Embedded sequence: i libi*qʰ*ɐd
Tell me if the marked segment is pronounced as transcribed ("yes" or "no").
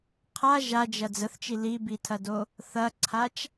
no